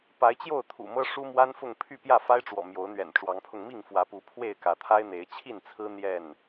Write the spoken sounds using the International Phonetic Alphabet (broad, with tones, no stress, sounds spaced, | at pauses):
p a˨˦ ɪ̯ t͡ɕ j o˥˨ ʊ̯ t̪ʰ ṵ˨˩ m ɤ˦ ʂ u˦ m w a˦ n f ʊ˥˨ ŋ pʰ y˥˨ p j ä˥˨ f a˦ ɪ̯ ʈ͡ʂ w ɔ̰˨˩ m j o˨˦ ʊ̯ n̪ ɥ ɛ̰˨˩ n ʈ͡ʂ w ɑ˨˦ ŋ pʰ ʊ˧ ŋ m i˥˨ ŋ f w ä˨˦ p u˨˦ pʰ w e˥˨ ɪ̯ k ä˨˦ t̪ʰ a˦ ɪ̯ n̪ e˨˦ ɪ̯ t͡ɕʰ i˥˨ n t͡sʰ ɹ̩˦ n̪ j ɛ˥˨ n